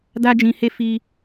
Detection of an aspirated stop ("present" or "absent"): absent